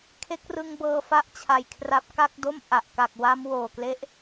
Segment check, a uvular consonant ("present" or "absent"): absent